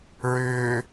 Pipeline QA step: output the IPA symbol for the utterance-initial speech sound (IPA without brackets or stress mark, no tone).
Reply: ɹ